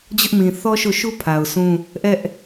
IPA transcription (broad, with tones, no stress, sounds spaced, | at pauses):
d͡ʑ ʊ˦ ʔ m ĩ˨ θ ɔ˦ ʃ o˦˨ ʃ u˦ pʰ a˨ ʊ̯ sʰ ũ˦ | ʔ ɛ˦ ʔ